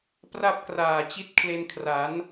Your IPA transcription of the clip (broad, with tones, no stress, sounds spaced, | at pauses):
p r a˥˩ p̚ k r aː˨˩ t͡ɕ i˦˥ t̚ kʰ l e˧ n kʰ r a˩˦ n